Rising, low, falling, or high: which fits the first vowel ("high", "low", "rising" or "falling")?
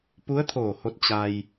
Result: rising